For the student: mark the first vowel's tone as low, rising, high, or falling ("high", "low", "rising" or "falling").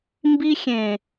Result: high